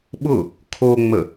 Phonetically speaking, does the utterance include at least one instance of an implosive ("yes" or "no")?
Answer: yes